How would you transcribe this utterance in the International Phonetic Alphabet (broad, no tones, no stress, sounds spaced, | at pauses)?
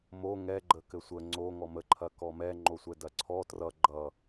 m o ŋ ɛ ɡ͡ǃ ə k ɘ sʷ ə ŋ͡ǀ o ŋ ɔ m ə ǃʰ ɐ k ɔ m ɛ ŋ͡ǃ o sʷ ɛ d ɐ ǀʰ ɔ t r ʌ ɡ͡ǃ ʌ